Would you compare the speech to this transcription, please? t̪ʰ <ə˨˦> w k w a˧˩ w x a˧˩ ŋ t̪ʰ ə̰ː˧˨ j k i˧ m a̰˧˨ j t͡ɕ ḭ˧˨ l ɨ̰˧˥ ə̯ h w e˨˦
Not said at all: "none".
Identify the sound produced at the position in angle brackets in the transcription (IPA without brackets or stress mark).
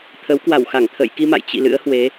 ə˨˦